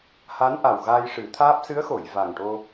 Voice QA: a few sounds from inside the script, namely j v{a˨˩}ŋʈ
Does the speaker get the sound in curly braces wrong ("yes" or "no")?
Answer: no